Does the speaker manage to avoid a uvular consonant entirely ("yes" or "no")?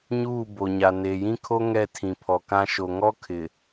yes